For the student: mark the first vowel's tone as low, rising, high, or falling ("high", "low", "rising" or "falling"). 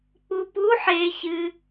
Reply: low